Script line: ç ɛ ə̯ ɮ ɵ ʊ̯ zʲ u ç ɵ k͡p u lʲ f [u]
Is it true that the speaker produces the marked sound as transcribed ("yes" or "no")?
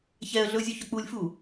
yes